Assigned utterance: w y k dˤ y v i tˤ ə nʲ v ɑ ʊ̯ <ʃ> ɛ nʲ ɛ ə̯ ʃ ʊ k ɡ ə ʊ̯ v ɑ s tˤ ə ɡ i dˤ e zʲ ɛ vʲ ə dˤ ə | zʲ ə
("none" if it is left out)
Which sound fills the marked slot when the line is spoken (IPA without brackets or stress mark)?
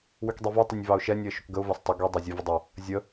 ʃ